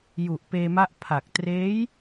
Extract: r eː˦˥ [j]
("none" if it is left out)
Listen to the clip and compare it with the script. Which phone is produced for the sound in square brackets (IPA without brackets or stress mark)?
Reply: j